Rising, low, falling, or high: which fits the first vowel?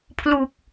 low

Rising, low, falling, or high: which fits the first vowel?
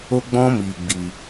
high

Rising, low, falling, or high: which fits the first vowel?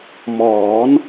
rising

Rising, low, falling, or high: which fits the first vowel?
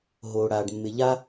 low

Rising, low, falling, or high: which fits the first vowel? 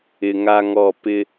low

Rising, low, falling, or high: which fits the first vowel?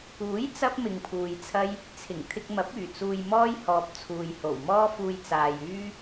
rising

